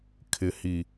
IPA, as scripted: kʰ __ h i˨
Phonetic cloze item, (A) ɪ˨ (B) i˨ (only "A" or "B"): A